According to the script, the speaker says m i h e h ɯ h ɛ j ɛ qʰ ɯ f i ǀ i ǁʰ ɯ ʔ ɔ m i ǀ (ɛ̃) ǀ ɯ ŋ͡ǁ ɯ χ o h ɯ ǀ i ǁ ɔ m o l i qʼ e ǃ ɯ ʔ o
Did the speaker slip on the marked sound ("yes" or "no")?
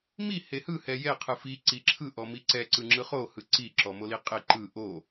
yes